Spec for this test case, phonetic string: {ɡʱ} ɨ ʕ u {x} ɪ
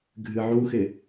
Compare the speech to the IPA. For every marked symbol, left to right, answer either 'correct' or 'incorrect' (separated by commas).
correct, correct